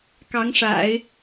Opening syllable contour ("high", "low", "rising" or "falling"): rising